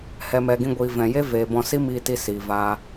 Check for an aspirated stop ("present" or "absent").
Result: absent